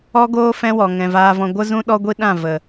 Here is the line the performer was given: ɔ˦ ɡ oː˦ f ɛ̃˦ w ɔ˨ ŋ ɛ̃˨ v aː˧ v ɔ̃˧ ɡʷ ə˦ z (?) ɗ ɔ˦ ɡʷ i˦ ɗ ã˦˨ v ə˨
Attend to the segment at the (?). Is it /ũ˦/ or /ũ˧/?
ũ˦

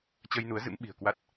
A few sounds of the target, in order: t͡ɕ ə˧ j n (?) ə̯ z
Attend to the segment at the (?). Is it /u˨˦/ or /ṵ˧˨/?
u˨˦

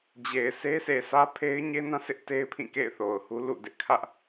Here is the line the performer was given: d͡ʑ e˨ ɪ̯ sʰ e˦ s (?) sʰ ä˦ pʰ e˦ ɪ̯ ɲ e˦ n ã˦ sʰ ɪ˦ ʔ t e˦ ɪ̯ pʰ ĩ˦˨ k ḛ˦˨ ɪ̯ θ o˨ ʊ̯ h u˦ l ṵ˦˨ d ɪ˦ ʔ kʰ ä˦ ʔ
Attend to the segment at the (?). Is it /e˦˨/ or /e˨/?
e˨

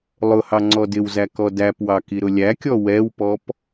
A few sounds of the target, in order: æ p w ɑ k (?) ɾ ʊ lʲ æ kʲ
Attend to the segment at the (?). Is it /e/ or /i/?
i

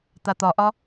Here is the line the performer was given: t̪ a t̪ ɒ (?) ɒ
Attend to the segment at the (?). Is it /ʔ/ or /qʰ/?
ʔ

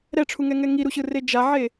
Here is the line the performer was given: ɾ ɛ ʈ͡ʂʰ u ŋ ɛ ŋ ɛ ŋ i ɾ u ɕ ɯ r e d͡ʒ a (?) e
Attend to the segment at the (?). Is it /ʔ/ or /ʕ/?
ʕ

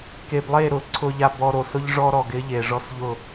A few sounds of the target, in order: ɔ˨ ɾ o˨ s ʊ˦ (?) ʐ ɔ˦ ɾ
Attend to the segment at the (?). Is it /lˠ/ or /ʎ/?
ʎ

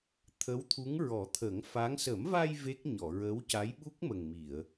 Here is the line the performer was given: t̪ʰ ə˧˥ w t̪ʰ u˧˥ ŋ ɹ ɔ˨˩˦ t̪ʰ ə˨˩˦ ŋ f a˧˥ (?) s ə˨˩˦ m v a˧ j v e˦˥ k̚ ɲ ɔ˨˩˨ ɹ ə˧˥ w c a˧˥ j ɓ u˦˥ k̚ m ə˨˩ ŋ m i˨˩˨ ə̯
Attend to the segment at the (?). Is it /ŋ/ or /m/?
ŋ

